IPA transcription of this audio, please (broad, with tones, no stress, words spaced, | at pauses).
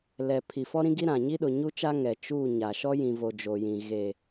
lɛ˨ pʰi˨fɔ˦ɾĩ˦ ɡi˦ɾã˨ ɲi˦ɗʊ˨ɲu˦t͡ʃa˦ ŋɛ˨t͡ʃu˦˨ ɲa˨ ʃɔ˦jĩ˨vo˨ d͡ʒo˨jĩ˨ ɣe˨